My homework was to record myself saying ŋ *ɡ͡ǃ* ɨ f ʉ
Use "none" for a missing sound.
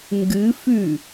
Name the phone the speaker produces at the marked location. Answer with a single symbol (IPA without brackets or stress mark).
ɡ